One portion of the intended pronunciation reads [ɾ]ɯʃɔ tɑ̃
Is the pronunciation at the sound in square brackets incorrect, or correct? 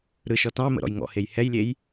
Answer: correct